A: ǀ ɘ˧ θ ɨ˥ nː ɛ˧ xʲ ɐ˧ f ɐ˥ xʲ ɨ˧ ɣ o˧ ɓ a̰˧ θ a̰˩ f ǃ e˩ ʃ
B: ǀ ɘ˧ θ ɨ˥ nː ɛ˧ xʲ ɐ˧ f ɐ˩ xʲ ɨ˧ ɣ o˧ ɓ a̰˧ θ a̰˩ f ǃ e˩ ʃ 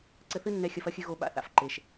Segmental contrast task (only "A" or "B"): A